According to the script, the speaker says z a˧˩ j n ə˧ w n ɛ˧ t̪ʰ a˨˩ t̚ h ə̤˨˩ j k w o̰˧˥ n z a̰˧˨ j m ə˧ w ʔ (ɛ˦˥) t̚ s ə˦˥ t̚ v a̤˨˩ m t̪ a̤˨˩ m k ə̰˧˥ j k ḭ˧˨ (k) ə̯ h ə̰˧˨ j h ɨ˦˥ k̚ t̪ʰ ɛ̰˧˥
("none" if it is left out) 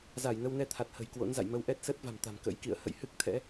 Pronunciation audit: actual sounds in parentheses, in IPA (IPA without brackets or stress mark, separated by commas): ɛ˦˥, none